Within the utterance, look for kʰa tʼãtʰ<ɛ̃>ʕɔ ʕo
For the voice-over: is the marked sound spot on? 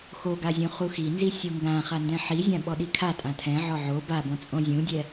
yes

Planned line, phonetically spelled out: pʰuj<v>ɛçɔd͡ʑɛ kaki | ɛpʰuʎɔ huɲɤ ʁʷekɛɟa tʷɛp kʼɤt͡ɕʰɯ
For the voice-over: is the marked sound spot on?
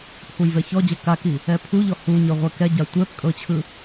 yes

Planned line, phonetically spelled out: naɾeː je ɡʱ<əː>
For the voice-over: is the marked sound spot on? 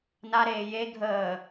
yes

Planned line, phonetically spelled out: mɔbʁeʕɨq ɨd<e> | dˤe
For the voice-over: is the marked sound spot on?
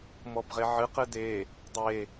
yes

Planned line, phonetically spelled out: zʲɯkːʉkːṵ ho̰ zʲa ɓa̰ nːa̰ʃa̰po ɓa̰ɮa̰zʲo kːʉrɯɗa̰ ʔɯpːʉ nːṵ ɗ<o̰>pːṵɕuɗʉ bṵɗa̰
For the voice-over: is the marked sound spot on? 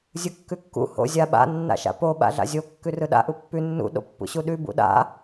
yes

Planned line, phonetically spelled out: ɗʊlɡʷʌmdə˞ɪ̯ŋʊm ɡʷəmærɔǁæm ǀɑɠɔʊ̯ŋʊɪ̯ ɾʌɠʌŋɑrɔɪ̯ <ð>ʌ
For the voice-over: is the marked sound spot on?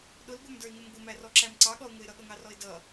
no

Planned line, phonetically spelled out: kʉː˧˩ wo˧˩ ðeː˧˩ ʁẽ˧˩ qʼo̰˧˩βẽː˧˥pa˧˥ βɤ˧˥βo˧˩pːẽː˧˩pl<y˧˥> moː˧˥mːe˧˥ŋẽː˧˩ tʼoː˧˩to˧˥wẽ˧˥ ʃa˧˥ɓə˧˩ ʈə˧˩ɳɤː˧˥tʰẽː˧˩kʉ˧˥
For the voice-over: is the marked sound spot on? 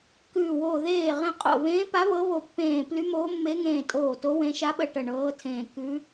yes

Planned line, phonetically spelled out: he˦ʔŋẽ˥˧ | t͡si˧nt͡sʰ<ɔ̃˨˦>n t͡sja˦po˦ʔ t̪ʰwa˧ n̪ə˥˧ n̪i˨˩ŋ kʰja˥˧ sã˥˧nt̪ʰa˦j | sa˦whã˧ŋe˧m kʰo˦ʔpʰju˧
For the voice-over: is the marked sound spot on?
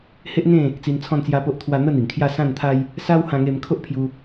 no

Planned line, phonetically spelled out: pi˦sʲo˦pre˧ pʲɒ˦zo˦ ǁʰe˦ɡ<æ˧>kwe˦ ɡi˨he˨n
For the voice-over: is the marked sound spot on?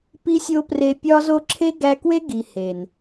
yes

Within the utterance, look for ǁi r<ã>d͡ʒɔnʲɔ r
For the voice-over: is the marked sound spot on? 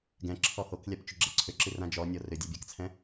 yes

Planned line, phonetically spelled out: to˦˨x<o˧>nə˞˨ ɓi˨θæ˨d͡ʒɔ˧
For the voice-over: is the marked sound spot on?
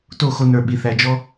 yes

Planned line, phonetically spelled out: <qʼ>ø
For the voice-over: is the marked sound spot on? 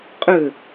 yes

